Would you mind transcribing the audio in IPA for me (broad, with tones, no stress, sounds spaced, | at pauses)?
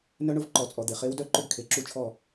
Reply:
n œ˥ ɳ ʊ˧˥ v ǃ ɔ˩˧ t͡sʼ ɔ˩ d̪ e˩ χ e˧˥ w d œ˥˧ ǃ ʏ˥˧ ɡ kʰ e˩ ǁ u˥˩ t͡ʃʰ ɔ˥˩